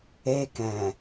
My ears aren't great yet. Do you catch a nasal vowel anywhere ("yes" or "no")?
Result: yes